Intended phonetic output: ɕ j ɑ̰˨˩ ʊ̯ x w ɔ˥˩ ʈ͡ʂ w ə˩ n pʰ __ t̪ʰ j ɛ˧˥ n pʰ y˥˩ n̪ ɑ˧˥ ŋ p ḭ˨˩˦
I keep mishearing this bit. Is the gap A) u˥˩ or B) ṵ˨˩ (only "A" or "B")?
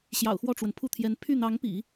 A